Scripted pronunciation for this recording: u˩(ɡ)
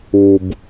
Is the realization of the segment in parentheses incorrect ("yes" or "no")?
yes